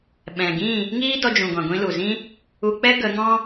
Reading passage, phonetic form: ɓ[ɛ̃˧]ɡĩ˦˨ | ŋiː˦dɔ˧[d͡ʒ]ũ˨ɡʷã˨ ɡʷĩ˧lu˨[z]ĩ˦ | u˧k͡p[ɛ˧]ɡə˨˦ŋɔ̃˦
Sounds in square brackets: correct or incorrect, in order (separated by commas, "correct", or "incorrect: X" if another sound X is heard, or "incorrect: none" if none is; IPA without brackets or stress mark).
incorrect: ɛ̃˨, correct, correct, incorrect: ɛ˦